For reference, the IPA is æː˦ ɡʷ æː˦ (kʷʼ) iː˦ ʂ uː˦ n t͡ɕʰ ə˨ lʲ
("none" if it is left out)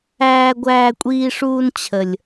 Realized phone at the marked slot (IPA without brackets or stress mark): kʷʼ